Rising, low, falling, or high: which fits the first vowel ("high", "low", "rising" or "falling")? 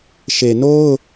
low